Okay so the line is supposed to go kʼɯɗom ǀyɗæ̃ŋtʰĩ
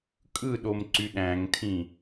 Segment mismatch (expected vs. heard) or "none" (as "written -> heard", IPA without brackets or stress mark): none